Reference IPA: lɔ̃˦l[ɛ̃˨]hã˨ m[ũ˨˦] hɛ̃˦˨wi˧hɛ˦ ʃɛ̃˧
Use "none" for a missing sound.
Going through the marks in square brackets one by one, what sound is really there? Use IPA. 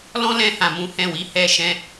ɛ̃˧, ũ˨˦

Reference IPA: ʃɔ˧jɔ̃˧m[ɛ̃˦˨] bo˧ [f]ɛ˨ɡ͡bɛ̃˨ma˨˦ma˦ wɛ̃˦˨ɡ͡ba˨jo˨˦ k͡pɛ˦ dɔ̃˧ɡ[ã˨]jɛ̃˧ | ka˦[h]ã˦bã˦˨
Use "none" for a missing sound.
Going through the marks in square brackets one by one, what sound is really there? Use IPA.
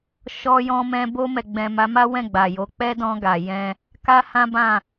ɛ̃˧, m, a˨, h

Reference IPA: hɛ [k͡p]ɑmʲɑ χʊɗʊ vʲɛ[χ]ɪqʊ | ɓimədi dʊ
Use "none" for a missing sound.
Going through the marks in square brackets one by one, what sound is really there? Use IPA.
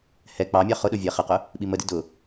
k͡p, χ

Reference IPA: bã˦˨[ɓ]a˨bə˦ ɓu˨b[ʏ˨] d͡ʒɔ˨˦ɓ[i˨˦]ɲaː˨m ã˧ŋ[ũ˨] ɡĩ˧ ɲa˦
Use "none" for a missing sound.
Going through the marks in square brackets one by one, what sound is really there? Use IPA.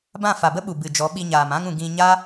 f, ɨ˨, i˧, ũ˨

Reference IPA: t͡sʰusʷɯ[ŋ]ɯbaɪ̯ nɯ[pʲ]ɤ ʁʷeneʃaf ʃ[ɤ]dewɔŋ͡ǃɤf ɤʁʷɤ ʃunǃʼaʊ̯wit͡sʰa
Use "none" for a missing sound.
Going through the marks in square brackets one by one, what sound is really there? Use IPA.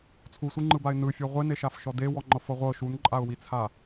ŋ͡ǃ, fʲ, ɔ

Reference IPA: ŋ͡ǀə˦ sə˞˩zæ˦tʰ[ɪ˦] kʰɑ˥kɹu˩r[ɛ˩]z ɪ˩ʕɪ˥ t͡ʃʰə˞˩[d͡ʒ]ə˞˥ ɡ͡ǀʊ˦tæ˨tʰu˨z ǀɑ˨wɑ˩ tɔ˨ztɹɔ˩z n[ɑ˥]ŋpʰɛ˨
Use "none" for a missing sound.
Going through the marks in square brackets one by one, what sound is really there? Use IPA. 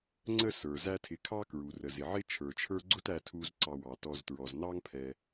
ɪ˨, ə˩, t͡ʃʰ, ɑ˥

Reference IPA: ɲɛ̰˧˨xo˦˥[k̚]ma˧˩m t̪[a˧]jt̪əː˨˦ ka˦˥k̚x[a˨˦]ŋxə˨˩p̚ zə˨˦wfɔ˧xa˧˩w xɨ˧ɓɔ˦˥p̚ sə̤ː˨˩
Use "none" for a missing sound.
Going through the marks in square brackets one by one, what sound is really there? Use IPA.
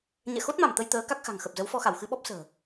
t̚, ə˧, a̤˨˩

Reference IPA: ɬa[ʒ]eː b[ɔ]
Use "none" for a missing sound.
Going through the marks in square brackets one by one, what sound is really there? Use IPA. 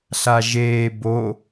ʒ, o

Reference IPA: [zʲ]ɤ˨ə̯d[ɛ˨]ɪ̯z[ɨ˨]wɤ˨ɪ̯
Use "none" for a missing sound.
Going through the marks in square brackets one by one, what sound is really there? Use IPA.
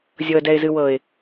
zʲ, ɛ˨, ɨ˨

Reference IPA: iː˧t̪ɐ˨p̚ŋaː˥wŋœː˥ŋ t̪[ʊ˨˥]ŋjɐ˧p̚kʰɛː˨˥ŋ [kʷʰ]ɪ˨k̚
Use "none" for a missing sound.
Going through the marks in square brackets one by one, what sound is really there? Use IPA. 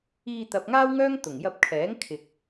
ʊ˨˩, kʰ

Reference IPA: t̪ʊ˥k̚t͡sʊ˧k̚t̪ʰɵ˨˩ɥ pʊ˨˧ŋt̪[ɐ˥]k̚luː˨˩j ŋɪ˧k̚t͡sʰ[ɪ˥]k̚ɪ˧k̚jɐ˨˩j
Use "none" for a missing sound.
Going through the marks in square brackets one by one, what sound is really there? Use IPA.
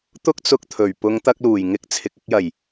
ɐ˧, ɪ˨

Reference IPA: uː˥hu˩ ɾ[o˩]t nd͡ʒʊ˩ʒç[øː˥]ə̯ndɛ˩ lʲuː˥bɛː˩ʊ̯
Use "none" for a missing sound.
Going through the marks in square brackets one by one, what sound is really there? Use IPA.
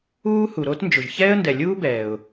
o˥, ɛː˥

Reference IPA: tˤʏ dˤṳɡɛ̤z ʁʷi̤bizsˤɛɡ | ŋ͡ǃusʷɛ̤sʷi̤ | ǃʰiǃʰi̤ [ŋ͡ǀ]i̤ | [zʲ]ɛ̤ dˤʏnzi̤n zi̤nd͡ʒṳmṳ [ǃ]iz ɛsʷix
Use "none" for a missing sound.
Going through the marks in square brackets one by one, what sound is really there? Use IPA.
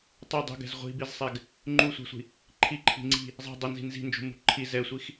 ŋ͡ǀ, zˤ, ǃʰ

